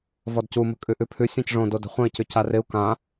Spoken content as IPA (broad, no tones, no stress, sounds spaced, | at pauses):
v ɔ d c u m ə̤ kʼ ʉ ʔ ʉ pʰ ʉ sʲ ã c ʐ õ d o d ə̤ χʷ ə̃ i̯ c ʉ c a r ɪ u̯ k ã